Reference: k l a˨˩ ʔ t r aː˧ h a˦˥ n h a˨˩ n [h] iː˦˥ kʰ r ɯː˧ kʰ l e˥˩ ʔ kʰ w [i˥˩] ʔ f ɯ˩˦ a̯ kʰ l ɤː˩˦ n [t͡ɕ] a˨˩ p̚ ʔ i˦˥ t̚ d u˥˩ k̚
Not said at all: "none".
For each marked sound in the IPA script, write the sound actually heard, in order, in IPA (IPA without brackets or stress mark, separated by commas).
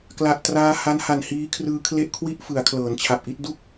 h, i˥˩, t͡ɕʰ